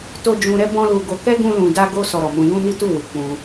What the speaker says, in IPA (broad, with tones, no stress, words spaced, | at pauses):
to˦ d͡ʒũ˧ɾɛ˦ bɔ̃˦lu˧ɡo˧ kɛ˦ ɡũ˦lũ˧da˦ɡo˦ sɔ˧ɾɔ˨mũ˧ jũ˦ ni˦tu˦˨ wi˨ k͡pũ˧